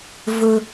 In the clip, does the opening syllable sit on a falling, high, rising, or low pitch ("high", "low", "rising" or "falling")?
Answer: high